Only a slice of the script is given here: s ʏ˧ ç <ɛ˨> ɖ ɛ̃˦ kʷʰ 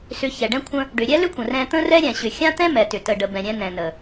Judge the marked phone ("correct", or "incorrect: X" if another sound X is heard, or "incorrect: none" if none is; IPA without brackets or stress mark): correct